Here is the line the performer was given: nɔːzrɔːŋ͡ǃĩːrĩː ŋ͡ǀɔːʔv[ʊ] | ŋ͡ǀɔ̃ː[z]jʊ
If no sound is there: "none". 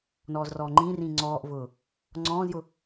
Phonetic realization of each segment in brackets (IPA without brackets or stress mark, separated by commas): ʊː, z